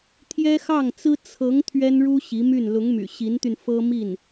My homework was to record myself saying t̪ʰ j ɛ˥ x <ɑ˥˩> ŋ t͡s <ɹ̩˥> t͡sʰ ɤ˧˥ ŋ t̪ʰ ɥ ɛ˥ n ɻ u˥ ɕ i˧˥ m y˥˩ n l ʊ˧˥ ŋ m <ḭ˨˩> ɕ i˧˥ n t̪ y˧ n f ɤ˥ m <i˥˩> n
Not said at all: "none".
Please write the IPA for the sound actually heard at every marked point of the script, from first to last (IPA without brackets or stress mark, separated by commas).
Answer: ɑ˥˩, ɹ̩˥, y̰˨˩, i˥˩